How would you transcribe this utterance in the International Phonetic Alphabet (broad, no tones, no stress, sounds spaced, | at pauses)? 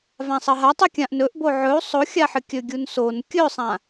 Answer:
v ã sˤ ɐ ɦ a tˤ i kʲ ã ʔ n ɵ ʔ b o ʕ ɵ u̯ sˤ o xʲ a ħ ɨ kʲ ɵ ɡʲ u n s o n kʲ ɵ sˤ ã